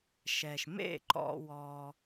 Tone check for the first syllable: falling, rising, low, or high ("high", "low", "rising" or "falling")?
low